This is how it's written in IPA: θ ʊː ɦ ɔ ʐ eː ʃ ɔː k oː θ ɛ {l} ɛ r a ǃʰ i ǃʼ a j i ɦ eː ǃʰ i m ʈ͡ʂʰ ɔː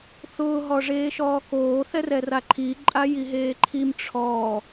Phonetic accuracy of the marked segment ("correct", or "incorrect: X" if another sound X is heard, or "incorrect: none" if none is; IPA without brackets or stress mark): incorrect: r